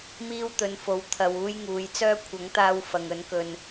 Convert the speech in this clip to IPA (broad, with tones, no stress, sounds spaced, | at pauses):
m iː˧ w t̪ ɵ˨˧ n f o˨˧ w t̪ʰ ɐ˨ w uː˧ j ŋ uː˨˧ j t͡s œː˥ kʷʰ ɐ˨˥ ŋ t̪ aː˧ w f ɐ˨ ŋ ɵ˨˥ n k ɵ˧ n